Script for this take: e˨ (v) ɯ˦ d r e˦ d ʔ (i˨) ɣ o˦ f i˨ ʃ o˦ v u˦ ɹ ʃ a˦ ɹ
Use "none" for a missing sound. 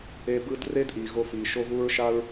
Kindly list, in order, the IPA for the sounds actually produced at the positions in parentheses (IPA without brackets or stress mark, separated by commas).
b, i˨